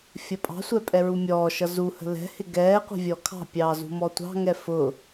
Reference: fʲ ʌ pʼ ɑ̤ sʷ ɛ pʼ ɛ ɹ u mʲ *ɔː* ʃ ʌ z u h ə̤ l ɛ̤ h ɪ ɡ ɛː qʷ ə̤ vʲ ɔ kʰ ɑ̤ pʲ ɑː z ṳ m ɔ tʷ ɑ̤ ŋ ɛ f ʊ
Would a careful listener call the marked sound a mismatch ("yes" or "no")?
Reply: no